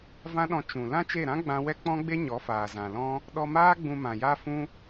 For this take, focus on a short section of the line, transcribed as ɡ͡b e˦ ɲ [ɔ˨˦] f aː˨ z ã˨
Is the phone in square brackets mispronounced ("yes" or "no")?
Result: no